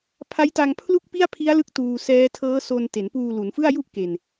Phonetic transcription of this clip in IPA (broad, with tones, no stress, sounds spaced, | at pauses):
pʰ a˦˥ j t a˧ ŋ pʰ l u˥˩ k̚ p i˥˩ a̯ pʰ i˦˥ a̯ l ɯ˦˥ k̚ t uː˧ s ɛː˦˥ tʰ ɤː˦˥ s o˧ n t e˩˦ n p uː˧ l u˩˦ n f ɯ˥˩ a̯ j u˥˩ ʔ k e˨˩ n